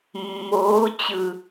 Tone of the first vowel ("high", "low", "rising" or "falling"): rising